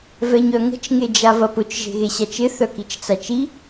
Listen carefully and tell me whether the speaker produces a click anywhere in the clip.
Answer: no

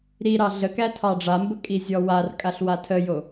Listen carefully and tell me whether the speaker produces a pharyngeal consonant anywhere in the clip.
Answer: no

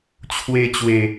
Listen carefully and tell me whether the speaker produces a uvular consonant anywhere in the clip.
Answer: no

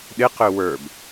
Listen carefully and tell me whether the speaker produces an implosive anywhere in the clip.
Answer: yes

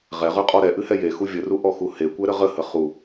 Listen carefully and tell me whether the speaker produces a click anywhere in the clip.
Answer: no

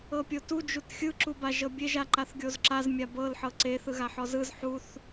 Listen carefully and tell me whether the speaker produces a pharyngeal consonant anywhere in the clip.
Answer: yes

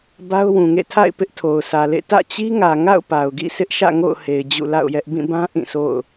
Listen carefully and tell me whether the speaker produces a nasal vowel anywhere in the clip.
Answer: yes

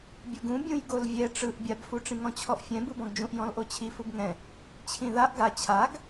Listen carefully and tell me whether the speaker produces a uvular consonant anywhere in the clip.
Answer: no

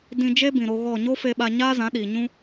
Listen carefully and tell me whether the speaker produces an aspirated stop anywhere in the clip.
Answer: no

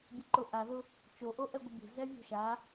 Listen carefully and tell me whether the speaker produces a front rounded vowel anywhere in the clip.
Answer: no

